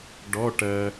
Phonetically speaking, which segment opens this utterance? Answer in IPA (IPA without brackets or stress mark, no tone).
ɖ